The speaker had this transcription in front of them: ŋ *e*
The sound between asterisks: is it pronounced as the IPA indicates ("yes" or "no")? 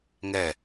no